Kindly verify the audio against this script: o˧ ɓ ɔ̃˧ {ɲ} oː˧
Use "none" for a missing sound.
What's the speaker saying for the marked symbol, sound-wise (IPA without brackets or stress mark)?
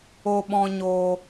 ɲ